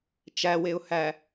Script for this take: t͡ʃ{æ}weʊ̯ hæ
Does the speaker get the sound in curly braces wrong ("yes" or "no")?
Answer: no